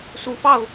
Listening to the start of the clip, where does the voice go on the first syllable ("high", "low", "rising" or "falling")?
rising